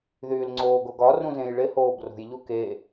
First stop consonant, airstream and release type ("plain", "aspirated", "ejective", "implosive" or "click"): click